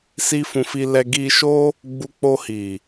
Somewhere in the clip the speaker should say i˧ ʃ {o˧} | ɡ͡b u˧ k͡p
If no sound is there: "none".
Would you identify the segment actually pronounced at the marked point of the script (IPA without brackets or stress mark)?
o˦